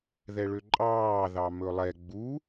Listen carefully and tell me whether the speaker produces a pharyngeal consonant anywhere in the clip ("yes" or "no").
no